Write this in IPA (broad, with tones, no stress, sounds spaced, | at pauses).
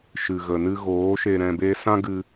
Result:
ʃ ɨ˨ ɣ ə˨ n ɨ˦ ɣ oː˨˦ ʃ e˧ ɾ ɛ̃˧ b e˦ s ã˦ ɡ ɨ˧